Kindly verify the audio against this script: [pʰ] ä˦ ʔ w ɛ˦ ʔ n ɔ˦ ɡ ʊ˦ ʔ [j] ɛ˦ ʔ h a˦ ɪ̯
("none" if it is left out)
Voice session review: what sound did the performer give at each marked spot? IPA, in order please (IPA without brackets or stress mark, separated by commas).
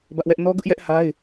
b, j